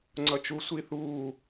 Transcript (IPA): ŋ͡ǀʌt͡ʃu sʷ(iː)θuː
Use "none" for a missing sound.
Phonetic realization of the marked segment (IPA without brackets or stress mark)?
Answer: i